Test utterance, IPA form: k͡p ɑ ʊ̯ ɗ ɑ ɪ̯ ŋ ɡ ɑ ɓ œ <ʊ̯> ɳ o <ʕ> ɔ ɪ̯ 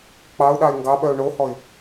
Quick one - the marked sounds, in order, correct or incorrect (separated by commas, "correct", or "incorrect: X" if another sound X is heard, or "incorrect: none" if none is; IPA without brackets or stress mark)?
correct, incorrect: h